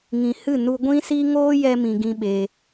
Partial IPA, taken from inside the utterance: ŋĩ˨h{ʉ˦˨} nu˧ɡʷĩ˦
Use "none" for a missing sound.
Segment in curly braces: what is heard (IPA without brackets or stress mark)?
ɨ˦˨